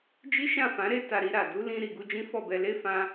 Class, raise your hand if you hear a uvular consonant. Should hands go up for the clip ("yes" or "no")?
no